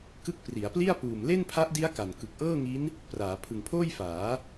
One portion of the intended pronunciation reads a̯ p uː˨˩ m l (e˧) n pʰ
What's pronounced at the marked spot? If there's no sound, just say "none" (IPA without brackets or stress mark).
e˥˩